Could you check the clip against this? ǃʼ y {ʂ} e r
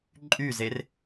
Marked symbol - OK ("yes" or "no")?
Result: no